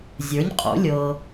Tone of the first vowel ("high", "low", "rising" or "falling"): rising